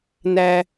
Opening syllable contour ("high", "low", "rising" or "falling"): low